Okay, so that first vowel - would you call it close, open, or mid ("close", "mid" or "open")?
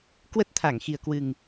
mid